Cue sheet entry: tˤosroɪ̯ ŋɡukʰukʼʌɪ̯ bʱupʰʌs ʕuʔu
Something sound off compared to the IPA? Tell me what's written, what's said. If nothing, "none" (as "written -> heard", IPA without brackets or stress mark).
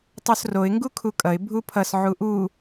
none